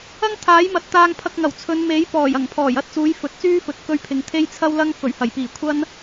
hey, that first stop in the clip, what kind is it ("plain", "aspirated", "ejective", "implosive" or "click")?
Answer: aspirated